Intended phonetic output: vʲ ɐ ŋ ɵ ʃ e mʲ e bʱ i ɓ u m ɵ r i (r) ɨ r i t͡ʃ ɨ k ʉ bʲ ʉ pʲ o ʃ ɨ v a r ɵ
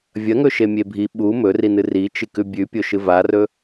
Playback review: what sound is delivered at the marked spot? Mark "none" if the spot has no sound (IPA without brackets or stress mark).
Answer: n